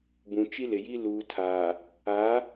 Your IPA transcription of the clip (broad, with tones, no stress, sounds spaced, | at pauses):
b ũ˨ t͡ʃ i˦ l ɪ˨ j i˦ l uː˨ tʰ aː˨ | a˨˦